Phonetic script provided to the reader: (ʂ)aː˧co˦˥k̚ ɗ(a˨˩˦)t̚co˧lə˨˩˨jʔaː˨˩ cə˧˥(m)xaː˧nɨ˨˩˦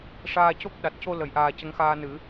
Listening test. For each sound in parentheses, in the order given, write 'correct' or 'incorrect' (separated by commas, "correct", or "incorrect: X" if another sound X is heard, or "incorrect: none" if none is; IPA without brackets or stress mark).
correct, incorrect: a˨˩, incorrect: ŋ